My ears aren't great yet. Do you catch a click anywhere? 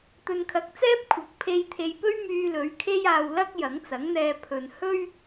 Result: no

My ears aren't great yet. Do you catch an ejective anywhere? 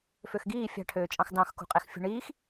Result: yes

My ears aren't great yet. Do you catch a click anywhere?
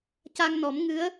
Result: no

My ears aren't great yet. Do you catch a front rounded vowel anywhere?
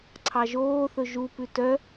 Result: yes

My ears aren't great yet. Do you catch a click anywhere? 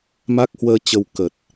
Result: no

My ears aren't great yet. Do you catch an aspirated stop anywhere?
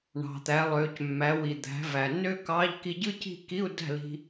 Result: no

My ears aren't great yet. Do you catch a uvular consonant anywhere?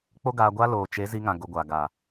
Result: no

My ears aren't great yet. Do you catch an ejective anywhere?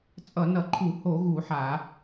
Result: yes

